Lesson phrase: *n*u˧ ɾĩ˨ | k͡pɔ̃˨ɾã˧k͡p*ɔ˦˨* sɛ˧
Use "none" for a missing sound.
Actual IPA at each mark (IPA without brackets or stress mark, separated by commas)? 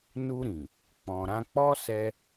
n, ɔ˦